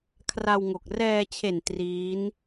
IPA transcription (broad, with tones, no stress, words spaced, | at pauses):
kʰra˧wŋo˨˩k̚ rɛː˧t͡ɕʰe˨˩n triː˦˥n